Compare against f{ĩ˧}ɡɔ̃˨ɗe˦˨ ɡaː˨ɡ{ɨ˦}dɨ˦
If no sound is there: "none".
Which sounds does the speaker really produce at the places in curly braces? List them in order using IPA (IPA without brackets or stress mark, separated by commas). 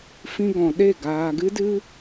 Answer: ĩ˧, ɨ˦